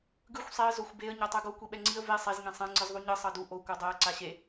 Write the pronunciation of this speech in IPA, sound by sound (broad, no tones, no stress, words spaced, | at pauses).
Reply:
ɡɯxʷ sˤeə̯ zoxʷbeə̯ ɲɔtˤɯɡo kʷiɓɛŋ͡ǀiə̯ ve sˤez ŋẽsˤɛ̃ ŋ͡ǀɯzðˤuɲɯ sˤɤdu ʔo kʷɤdˤɛə̯ ǀaɕe